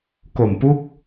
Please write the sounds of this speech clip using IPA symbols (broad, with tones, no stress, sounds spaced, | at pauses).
k o˨˩ m p u˦˥ k̚